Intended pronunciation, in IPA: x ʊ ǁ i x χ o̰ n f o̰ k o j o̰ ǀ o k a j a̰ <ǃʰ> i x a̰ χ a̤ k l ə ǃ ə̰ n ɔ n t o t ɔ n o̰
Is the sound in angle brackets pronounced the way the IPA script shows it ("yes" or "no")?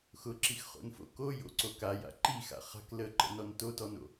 no